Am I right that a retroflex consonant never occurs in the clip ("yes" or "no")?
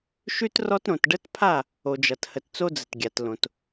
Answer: no